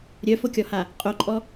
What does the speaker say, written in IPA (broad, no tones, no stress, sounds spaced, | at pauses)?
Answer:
ɾʲ œ f o kʲ ɔ h a | qʼ o ǃʼ ɔ